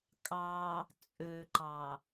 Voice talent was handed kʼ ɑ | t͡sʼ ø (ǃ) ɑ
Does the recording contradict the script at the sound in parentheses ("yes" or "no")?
no